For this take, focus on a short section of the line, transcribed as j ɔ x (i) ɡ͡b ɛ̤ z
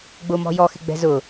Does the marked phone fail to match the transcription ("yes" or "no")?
yes